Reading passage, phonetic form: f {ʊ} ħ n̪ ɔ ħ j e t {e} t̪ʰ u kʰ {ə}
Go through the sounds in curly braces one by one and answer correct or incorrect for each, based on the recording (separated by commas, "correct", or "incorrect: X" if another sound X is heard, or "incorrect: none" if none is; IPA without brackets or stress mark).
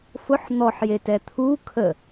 correct, incorrect: ɛ, correct